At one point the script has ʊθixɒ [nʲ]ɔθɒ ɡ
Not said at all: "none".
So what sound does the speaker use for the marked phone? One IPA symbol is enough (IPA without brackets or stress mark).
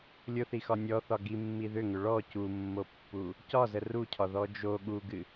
nʲ